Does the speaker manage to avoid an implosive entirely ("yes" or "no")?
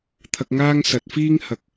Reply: yes